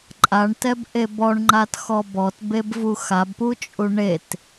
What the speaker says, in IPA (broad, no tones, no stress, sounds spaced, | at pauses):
ǃʼ a ɳ t ɛ b ʔ e b ɔ ɳ ŋ͡ǃ a t x ɔ b ɔ t b e b v u x a b p u t͡ʃʼ u ɳ e t